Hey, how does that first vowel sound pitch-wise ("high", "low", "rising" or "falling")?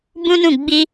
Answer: high